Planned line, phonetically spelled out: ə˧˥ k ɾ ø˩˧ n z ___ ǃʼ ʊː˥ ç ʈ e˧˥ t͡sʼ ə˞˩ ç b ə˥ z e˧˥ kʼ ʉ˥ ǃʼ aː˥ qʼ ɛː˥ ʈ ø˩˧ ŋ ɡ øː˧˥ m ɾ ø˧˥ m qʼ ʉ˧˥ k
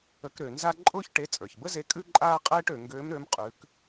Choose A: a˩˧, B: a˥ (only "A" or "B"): B